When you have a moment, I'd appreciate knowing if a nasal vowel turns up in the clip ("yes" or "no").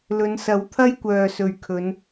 no